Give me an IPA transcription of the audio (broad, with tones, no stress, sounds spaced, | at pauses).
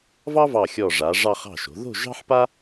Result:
v ɑ˥ v ɑ˧˩ xʲ ɔ˧˩ ʐ a˩˧ ʐ ɑ˧ χ ɑ̤˧˩ ʃ o̤˩˧ ð o̤˥˧ ʒ ɑ̤˥ ħ p a˥